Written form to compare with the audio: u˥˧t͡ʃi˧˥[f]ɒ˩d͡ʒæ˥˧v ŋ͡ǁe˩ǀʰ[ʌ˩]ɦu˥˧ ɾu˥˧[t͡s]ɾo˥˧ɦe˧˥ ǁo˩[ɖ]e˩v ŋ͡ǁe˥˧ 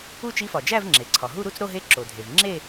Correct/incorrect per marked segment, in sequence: correct, incorrect: ɒ˩, correct, incorrect: dʱ

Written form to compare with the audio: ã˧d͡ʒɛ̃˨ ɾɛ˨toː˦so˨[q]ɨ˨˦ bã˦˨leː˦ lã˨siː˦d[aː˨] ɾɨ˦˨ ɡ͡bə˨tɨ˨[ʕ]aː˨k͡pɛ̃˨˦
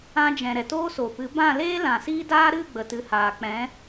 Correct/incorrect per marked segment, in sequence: incorrect: p, incorrect: aː˦, incorrect: h

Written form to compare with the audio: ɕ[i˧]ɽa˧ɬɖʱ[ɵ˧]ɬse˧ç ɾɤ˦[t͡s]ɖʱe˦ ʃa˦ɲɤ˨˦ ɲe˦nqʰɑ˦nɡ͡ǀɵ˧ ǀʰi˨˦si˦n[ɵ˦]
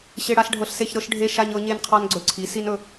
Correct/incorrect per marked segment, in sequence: incorrect: e˧, incorrect: ɤ˧, incorrect: ʃ, incorrect: ɵ˧

